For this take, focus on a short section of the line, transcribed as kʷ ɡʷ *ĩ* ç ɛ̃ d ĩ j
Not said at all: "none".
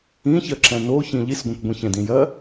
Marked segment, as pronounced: ĩ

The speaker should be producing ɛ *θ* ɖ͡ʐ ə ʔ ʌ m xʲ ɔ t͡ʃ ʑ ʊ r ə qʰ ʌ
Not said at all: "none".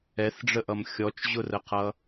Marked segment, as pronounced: θ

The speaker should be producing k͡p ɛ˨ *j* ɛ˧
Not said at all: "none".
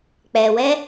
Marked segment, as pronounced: w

